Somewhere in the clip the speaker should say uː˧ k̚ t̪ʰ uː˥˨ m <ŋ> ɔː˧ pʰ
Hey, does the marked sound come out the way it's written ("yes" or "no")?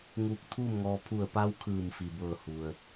yes